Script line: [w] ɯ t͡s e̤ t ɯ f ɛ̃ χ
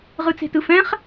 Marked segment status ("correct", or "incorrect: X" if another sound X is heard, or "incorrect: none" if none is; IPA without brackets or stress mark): incorrect: ʁ